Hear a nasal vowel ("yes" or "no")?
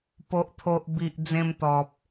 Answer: yes